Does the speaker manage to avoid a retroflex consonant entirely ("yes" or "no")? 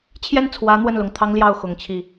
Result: yes